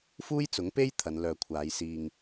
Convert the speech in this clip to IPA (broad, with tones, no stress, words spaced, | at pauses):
fuː˥jt͡sʊ˨˥ŋpe˥j t̪ʰɐ˨˧nlœː˨kʷʰaː˨˧j siː˨ŋ